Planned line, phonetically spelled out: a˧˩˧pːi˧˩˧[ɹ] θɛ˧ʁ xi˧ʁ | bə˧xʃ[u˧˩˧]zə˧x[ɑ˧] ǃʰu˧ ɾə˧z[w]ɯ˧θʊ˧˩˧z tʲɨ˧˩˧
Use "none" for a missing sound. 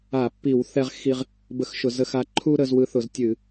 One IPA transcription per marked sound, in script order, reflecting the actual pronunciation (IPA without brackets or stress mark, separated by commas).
w, ʊ˧˩˧, a˧, w